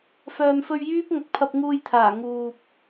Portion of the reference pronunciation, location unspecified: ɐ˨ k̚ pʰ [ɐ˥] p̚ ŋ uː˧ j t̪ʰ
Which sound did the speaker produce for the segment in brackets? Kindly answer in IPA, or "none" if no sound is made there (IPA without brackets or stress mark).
ɐ˧